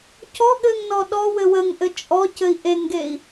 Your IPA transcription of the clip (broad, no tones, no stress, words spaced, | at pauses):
cɔɠɘŋnɔ ɗɔwɘ wəŋʔɘ t͡ʃʼɔcɘi̯ ʔeŋɡei̯